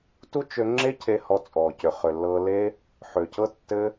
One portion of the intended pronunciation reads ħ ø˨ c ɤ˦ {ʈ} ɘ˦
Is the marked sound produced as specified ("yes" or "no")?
no